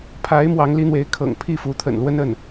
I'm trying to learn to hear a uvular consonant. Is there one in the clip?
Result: no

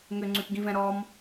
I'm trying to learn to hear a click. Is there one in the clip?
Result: yes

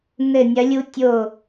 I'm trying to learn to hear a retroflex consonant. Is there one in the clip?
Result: no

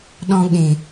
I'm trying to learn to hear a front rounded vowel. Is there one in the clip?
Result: no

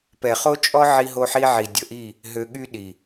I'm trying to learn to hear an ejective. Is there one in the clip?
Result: yes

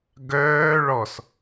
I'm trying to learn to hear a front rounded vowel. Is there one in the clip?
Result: yes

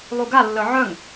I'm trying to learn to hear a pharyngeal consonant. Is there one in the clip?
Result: yes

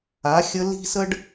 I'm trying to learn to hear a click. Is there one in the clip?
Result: no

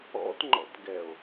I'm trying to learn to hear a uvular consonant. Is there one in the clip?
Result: no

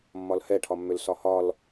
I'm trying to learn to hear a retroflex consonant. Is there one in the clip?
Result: yes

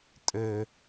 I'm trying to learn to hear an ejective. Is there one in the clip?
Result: yes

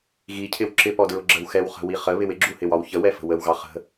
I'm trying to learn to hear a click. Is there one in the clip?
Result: yes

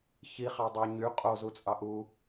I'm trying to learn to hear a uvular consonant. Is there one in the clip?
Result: yes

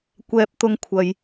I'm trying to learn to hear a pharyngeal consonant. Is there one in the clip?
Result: no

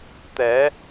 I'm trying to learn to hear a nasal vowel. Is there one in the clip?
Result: no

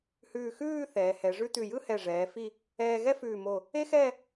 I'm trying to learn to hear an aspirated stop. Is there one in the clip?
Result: no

